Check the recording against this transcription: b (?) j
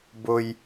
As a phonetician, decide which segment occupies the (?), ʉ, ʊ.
ʊ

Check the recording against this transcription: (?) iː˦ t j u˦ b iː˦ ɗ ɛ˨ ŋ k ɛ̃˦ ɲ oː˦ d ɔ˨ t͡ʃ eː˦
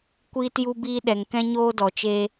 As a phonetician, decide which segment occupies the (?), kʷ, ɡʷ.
kʷ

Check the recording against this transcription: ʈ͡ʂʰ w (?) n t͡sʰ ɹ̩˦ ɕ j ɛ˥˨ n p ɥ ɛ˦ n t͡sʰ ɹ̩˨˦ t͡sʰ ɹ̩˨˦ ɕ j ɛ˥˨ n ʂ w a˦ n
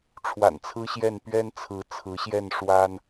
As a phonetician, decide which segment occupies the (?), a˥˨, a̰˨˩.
a̰˨˩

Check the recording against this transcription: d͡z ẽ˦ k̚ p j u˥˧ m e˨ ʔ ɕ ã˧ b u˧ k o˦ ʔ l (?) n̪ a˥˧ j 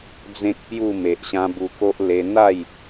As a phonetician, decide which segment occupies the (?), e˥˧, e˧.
e˧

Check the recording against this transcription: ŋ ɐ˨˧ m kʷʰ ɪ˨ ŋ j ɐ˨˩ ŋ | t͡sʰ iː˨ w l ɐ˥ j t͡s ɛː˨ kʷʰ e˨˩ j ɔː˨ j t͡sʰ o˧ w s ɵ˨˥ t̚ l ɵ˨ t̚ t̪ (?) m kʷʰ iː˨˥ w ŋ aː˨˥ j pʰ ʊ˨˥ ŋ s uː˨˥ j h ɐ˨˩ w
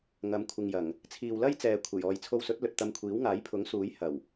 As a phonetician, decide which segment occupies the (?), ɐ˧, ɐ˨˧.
ɐ˧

